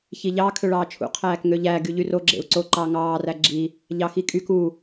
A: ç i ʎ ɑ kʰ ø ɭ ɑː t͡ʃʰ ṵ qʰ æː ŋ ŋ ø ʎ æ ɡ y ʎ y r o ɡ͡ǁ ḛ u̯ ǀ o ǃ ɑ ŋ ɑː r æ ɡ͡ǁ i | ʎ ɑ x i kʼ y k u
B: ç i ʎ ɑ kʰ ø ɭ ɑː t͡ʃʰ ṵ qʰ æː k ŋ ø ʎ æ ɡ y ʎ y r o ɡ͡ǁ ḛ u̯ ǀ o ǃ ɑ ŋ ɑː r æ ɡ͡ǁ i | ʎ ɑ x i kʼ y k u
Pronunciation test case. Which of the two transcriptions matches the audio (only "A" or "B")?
B